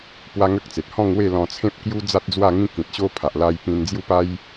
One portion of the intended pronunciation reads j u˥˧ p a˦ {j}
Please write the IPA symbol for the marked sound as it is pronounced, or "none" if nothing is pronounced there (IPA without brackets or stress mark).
j